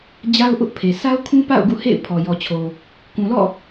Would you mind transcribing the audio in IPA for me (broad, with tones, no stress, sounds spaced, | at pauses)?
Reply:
d͡ʑ a˦ ʊ̯ ʔ ʊ˦ ʔ pʰ e˨ sʰ a˦ ʊ̯ kʰ ũ˦ p a̰˦˨ ʊ̯ ɡ ṵ˦˨ h ḛ˦˨ ɪ̯ pʰ ɔ˨ j ɔ˨ t͡ɕʰ o˨ | k ũ˨ l ɔ̰˦˨